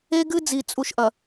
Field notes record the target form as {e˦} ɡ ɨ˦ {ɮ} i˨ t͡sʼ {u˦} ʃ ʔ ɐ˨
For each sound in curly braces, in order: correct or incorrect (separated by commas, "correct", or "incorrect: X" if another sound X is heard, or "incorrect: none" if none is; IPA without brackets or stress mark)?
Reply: correct, incorrect: d͡z, correct